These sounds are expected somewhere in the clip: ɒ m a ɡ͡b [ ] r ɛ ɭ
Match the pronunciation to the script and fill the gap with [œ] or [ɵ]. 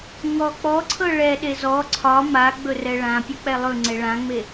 ɵ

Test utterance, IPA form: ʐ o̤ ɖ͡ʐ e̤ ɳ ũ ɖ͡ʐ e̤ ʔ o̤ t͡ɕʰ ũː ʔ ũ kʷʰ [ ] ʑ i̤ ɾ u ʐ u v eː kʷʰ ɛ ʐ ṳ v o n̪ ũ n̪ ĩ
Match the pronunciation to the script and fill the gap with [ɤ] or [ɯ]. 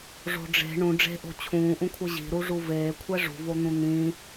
ɯ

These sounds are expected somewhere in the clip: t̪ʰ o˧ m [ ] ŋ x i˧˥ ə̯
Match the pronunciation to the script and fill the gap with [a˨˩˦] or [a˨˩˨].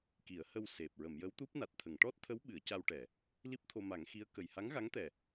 a˨˩˦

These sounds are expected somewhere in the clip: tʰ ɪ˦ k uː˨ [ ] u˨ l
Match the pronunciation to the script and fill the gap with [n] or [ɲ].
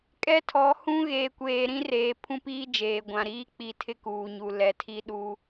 ɲ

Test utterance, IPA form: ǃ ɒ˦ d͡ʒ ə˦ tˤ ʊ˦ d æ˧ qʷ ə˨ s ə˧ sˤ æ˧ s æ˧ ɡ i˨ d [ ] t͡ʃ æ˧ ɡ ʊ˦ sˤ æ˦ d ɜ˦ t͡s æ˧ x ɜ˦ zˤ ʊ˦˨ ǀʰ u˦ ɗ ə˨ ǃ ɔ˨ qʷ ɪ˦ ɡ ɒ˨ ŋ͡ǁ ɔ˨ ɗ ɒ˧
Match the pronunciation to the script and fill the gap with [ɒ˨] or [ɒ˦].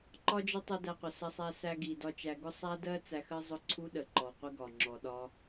ɒ˦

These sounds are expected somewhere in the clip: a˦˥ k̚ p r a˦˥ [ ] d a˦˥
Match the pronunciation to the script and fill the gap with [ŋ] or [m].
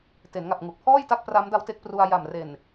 m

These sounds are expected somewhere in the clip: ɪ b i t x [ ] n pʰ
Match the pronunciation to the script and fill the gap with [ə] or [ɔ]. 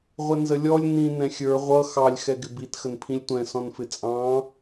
ə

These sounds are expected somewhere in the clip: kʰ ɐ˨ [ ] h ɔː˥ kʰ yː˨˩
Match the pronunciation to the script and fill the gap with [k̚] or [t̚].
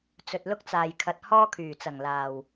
t̚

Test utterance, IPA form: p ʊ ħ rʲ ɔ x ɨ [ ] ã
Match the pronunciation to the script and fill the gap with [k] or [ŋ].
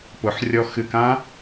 k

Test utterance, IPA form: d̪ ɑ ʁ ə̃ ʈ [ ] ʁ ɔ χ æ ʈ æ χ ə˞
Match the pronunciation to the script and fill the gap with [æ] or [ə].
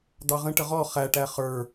ə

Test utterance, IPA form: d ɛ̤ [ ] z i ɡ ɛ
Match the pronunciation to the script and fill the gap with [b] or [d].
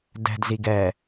d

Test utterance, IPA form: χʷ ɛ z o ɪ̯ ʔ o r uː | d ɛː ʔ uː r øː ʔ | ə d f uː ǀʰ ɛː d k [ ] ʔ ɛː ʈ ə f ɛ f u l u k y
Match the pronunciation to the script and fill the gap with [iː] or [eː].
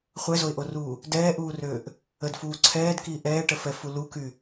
iː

